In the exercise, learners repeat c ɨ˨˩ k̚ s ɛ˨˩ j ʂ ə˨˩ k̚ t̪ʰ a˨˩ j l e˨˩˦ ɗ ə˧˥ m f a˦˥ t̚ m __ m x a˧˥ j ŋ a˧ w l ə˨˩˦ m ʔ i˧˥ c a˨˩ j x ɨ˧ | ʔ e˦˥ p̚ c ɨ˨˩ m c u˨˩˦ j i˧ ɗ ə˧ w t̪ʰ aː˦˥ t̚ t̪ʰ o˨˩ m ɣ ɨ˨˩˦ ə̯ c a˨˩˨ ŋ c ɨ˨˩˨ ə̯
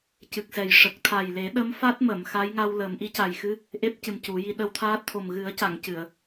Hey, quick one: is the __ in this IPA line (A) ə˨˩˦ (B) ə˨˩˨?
B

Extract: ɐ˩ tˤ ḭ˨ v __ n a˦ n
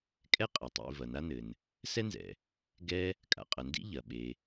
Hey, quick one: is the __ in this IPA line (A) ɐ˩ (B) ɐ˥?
A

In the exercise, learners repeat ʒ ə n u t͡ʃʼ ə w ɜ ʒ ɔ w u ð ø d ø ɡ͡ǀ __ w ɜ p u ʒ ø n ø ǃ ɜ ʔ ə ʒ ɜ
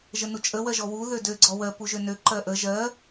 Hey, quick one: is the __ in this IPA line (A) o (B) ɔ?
B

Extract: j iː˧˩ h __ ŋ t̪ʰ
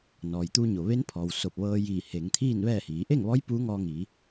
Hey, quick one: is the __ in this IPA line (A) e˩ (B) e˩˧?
B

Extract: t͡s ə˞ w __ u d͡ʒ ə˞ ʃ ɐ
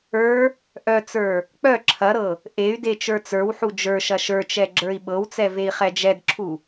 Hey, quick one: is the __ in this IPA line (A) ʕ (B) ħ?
B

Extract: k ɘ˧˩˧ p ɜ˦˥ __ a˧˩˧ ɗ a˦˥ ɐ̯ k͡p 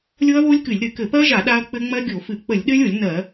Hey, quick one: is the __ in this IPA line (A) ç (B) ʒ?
B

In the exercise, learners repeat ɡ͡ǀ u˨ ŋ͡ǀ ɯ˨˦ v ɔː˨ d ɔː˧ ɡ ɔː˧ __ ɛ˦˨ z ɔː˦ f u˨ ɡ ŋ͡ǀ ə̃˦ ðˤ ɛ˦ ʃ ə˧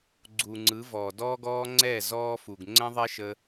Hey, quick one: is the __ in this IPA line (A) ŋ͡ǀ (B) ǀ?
A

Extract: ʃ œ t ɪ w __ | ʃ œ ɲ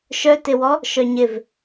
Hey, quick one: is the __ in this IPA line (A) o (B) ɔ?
B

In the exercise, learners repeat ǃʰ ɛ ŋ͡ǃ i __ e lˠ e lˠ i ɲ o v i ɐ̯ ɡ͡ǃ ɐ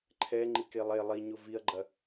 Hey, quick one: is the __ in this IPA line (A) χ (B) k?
B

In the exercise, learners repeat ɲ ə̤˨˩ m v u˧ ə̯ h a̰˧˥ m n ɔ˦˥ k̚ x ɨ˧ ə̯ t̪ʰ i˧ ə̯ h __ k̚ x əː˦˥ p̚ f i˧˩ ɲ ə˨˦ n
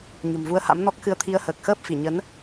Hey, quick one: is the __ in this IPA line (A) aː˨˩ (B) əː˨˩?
B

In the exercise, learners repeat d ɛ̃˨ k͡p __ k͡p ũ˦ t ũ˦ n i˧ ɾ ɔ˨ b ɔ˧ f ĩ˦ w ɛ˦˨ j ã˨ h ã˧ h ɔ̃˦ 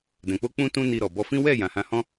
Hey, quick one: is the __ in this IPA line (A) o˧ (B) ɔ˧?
A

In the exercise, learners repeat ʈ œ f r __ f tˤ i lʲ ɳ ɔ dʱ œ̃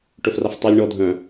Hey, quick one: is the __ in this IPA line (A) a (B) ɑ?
A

